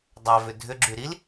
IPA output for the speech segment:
dˤavʏ dʱʏɡ͡ǁy ɾil

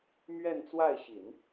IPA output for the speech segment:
mɥɛ˥˧nt͡swa˥˩ɪ̯ɕi˨˩˦n

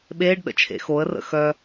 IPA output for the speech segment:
ɓeːɖɗə̰t͡ʃʰḛ xoə̯rə̰ xœ

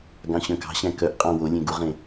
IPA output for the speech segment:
ɡɑ̃ɕœ̃kɑ̤ɕæ̃ kœʔqʼɑ̃ wolʲẽ ɡuʁẽ

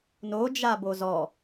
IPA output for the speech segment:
nod͡ʒa bozɔ

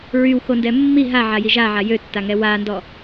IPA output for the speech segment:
ɹywxondɛ mːi ɦaʕaji ʒaʕa jøtːaŋɛ wandɔ

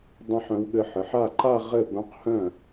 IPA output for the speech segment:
dˤã˥˧ħœ̃˧˥wɠɘ˧˥ ħɘ˩˧˩ħa˥˩ ǃa˥˧ ʁɘ˥˩bœ̃˧˥qhœ̃˥˩

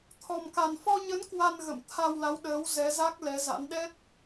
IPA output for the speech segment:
t̪ʰɔ˨˩mka˨˩nfɔ˧ɲə˨˦n kwa˧nɣə̰˧˨m t̪ʰa˧wla˨˦wɗəː˨˦w zɛ˨˦za˦˥k̚ lɛ˨˦za̰˧˥nɗɛ˦˥t̚

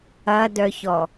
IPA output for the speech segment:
ɐdœçɔ

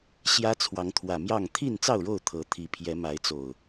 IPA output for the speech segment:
ɕjä˦t͡sʰwɑ˨˦ŋt̪ʰwä˨˩ mjɑ˥˨ŋ t̪ʰi˥˨nt͡sɑ˥˨ʊ̯ɻo˥˨ʊ̯ t̪ʰɤ˨˦t̪ʰi˨˦ pʰjɛ˨˦ma˨˦ɪ̯t͡so˨˩ʊ̯

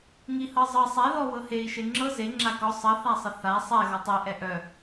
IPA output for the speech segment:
ŋihɤzˤɤ sˤɛ ðɔ wɤhei̯ ʃeŋ͡ǁɤ ze ŋ͡ǁakɔ sˤə θasˤəθa sˤɛ ɣɔtˤi ʔɛʔœ

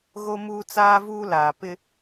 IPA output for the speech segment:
ɣo˦muː˦t͡saː˦vuː˦ laː˨pɪ˦

